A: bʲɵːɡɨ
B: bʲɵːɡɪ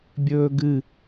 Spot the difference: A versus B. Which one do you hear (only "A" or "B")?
A